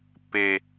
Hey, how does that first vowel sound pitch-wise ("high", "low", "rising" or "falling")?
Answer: high